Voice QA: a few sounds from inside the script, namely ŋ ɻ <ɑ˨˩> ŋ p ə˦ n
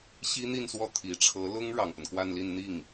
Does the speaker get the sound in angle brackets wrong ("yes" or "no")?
no